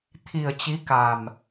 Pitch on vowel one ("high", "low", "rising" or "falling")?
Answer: low